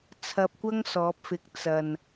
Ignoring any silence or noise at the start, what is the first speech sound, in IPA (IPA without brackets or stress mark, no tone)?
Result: t͡sʰ